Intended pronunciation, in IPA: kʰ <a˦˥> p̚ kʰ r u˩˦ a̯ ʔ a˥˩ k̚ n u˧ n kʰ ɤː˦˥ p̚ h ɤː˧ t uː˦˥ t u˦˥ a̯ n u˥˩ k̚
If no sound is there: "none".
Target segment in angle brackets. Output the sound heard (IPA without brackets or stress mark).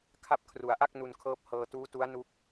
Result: a˦˥